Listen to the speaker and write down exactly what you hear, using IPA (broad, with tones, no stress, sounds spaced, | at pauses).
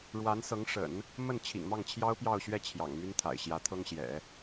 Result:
ɻ w a˧˥ n s ɤ˧˥ ŋ ʂ ə̰˨˩˦ n | m ə˥˩ n t͡ɕʰ ḭ˨˩ ŋ m ɑ˥˩ ŋ t͡ɕʰ j ɑ˥ ʊ̯ p j ɑ˥˧ ʊ̯ ɕ ɥ ɛ˥˩ t͡ɕʰ j ɑ̰˨˩ ŋ m y˥ n t̪ʰ a̰˨˩ ɪ̯ ɕ j ä˧˥ t̪ʰ ɤ˥ ŋ ɕ j ɛ̰˨˩˦